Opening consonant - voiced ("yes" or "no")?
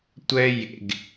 no